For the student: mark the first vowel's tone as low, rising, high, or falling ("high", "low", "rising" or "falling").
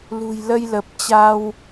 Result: low